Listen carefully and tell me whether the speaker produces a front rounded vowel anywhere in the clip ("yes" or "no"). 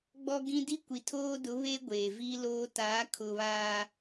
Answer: no